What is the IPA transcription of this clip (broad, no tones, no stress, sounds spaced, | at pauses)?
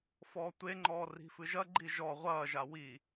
f ɔː tʷ e ŋ͡ǃ ɔː r i̤ f ɨ ʒ ɐ ɡ͡ǃ i ʒ ɔ ʁʷ ɐː ʒ a w i